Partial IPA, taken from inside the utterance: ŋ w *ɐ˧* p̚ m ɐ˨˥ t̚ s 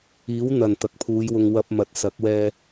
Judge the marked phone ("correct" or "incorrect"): correct